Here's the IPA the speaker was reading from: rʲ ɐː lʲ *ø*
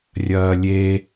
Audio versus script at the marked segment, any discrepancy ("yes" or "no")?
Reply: yes